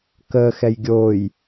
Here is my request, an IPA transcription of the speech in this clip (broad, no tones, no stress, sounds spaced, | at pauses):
k ə x ɛ j ɡʲ o j